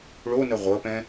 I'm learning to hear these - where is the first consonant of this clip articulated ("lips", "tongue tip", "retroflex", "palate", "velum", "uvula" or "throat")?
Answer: retroflex